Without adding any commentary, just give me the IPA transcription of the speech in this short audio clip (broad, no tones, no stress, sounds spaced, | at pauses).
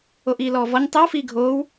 o ʔ iː l ɔː v ɔ ɲ tˤ i w f iː ɡʱ oː w